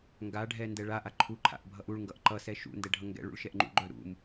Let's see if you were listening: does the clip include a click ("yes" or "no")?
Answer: yes